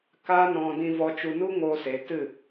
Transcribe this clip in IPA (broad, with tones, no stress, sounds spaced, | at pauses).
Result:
k aː˦ n ɔ̃˧ d ĩ˧ v ɔ˧ t͡ʃ u˧ n u˦ ŋ oː˧ s e˨˦ t ɨ˦˨